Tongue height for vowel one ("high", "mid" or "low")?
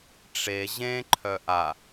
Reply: mid